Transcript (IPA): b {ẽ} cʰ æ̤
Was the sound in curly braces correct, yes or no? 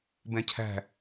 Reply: no